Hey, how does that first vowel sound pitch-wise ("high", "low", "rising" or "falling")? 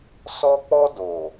high